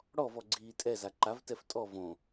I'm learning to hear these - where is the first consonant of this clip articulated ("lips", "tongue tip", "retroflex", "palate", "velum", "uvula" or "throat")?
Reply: retroflex